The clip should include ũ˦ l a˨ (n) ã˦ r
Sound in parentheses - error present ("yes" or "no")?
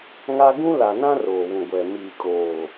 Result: no